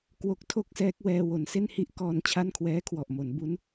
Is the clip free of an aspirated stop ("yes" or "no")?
no